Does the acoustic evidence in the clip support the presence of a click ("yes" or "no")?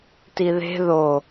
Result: no